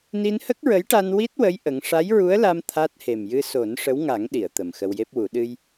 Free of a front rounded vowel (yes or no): yes